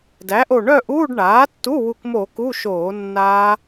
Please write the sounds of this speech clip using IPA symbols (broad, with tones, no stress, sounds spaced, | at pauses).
d æ˩˥ ʔ o˧˩ ɳ œ˥˨ ʔ uː˧˥˧ ɖ ɳ aː˩˥ tː u˧˥˧ w u˧˩ k m o˧˩˧ k u˧˥˧ ʃ oː˧˩˧ nː aː˦˥